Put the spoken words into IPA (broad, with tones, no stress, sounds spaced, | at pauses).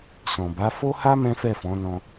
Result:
s ɔ̃˨ b a˨˦ f o˦ h a˦ m ɛ̃˦ f ɛ˦˨ f ɔ̃˨˦ n ɔ̃˧